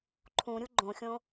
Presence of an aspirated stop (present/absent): present